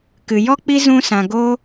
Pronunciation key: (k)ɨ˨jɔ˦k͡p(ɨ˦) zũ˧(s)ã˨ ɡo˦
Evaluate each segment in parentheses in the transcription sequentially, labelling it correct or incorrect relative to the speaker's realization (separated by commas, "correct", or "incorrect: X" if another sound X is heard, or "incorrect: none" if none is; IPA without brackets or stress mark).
correct, incorrect: i˦, correct